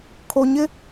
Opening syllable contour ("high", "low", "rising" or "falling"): low